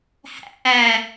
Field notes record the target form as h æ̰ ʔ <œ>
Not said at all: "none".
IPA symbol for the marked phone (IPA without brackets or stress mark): æ